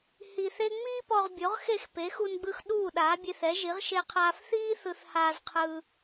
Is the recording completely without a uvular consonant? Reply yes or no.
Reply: no